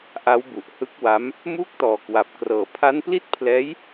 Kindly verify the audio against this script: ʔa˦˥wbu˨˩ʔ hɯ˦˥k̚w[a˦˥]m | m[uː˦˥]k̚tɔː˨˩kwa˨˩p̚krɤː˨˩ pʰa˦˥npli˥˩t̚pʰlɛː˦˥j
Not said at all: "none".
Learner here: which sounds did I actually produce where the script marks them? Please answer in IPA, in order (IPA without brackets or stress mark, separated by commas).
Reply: a˦˥, uː˥˩